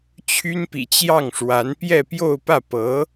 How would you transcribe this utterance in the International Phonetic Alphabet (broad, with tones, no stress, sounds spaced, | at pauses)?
t͡ɕʰ y˥ n p ḭ˨˩ t͡ɕ j ɑ˥˩ ŋ ʂ w a˧˥ n p j ɛ˥˧ p j o˥˧ ʊ̯ p ä˥˩ p ɤ˧˥